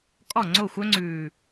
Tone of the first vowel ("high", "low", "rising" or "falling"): falling